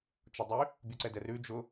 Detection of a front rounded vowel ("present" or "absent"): present